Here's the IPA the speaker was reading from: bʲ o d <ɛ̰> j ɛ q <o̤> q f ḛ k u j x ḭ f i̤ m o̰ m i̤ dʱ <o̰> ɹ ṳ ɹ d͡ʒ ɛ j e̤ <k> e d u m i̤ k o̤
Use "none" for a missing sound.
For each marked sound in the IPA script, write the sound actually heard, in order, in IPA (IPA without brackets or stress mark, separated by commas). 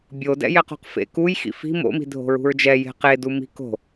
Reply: ɛ̰, o̤, o̤, q